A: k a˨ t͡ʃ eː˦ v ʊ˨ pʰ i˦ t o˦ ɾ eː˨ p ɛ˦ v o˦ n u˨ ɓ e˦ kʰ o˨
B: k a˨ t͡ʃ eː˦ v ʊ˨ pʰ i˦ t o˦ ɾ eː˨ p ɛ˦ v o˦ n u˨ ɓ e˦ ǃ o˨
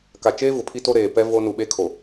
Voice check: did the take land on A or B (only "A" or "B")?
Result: A